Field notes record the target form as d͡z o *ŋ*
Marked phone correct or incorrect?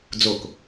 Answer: incorrect